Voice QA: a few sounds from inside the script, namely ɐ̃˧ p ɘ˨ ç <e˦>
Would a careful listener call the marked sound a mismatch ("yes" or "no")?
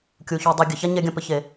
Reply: yes